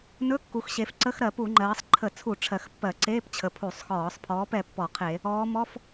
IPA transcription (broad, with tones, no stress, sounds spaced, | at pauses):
n ɵ˧˥˧ kː u˩˧ x ɕ e˩˧ f ǀ ə˧˥˧ x ɾ ɜ˧˩˧ p u˧˩˧ ŋ͡ǃ ɜː˩˧ sˤ ǃʰ ə˧˩˧ t͡sʰ u˧˩˧ ʈ͡ʂʰ ɜ˨˩ x pː ɜ˧˩˧ ǀ eː˧˥˧ p t͡ɕʰ ə˨˩ pʰ u˧˩˧ sˤ x ɔː˧˩˧ sˤ pʰ ɔː˨˥ p ɛ˩˧ pː ɔ˧˩˧ qʰ e˧˩˧ | ɔː˩˧ m ɔ˧˥˧ f